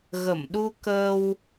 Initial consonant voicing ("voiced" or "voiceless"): voiced